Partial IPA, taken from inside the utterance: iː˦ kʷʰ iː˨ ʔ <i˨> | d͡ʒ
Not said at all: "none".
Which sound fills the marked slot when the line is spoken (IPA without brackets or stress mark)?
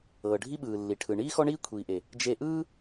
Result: e˨